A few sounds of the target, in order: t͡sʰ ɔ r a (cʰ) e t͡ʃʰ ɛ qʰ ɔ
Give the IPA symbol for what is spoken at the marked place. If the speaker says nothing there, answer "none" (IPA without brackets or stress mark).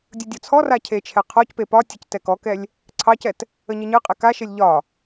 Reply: cʰ